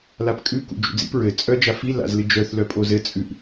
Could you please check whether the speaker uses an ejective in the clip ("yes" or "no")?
yes